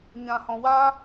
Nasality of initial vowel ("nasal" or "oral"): nasal